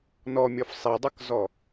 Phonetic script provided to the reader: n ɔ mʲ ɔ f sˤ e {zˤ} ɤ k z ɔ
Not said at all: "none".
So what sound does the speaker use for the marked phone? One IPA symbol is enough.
dˤ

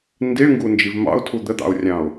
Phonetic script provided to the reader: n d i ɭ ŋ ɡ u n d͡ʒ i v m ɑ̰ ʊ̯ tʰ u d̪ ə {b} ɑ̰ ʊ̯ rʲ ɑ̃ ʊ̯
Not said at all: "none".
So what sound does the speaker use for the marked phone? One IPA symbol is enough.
d̪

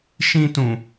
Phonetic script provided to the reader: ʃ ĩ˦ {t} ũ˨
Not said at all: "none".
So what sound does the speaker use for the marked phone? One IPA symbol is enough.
t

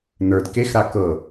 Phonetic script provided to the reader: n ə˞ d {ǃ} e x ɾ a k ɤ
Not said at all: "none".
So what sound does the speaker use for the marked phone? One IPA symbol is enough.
k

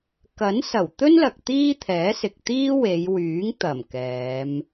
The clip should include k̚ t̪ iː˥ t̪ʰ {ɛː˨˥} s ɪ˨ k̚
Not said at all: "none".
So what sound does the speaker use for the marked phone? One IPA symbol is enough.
ɛː˨˥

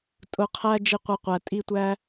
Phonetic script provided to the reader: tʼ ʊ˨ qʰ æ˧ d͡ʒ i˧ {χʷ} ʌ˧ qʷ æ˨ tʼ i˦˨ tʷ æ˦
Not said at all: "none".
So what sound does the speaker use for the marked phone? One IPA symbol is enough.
qʷ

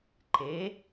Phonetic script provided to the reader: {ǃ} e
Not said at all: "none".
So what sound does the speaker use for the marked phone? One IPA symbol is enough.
ǃ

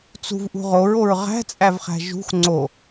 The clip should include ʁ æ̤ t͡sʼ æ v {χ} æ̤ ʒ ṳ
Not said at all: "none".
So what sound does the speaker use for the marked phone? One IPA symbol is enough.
χ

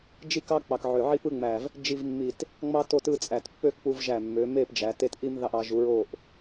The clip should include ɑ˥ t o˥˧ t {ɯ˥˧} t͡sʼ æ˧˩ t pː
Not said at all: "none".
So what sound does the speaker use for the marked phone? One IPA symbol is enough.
ɯ˥˧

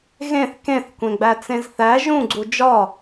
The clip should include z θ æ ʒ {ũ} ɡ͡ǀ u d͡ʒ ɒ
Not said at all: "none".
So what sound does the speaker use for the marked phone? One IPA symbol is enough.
ũ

